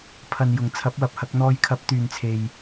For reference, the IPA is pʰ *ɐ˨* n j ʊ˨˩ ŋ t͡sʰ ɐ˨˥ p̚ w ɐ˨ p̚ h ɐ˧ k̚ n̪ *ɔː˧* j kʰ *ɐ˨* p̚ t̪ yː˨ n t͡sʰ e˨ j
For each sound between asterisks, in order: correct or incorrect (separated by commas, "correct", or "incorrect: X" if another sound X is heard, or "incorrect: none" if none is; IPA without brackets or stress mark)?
correct, correct, incorrect: ɐ˨˥